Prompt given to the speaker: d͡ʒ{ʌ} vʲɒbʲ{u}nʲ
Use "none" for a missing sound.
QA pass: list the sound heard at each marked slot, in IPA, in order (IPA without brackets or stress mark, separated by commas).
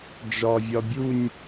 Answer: ɒ, u